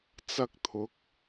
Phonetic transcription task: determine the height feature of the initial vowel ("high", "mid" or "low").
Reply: low